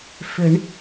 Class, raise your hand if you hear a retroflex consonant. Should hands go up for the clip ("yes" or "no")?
yes